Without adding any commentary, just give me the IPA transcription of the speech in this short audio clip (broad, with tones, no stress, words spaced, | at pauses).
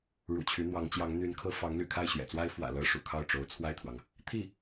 ɻṵ˨˩t͡ɕʰy˧˥n̪wɑ˧˥ŋt͡ɕjɑ˧˥ŋ n̪y˧˥nkʰɤ˧˥ fɑ˧˥ŋ ly̰˨˩kʰa˥˩ɪ̯ɕɥɛ̰˨˩t͡swa˥ɪ̯ fwä̰˨˩ lɤ˧˥ ʂṵ˨˩kʰɑ˥˩ʊ̯ʈ͡ʂo˧˥ʊ̯ t͡sʰwa˥˩ɪ̯t̪ʰwɑ˩ŋ | t̪ʰi˥˩